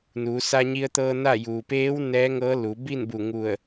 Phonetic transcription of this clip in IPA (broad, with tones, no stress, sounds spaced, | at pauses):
n uː˩˧ s a˧ ɲ i˧ ə̯ t̪ ɤː˧ n a˥˨ j uː˩ p eː˧˥ w n ɛː˧˥ ŋ ɤː˧˥ l u˩˧ b i˥˨ n b u˧˩ ŋ u˧˩ ə̯